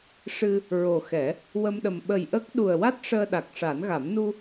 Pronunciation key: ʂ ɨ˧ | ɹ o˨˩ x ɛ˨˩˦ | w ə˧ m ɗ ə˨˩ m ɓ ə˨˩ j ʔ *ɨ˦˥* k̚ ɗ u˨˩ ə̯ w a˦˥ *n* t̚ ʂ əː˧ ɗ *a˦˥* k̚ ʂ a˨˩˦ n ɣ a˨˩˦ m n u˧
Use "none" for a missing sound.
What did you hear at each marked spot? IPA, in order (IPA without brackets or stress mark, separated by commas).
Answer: ə˦˥, none, a˨˩